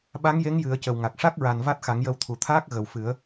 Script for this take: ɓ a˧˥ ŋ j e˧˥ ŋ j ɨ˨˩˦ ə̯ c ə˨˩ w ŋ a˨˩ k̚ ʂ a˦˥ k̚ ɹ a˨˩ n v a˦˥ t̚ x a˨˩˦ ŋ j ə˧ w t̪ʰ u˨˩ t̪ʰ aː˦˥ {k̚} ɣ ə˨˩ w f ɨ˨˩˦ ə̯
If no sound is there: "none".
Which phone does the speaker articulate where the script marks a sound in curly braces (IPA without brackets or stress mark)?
k̚